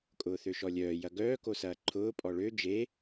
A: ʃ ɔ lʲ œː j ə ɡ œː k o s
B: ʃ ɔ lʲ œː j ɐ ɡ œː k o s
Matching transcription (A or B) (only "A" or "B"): B